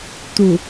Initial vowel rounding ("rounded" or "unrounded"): rounded